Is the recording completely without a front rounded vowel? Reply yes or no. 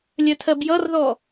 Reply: no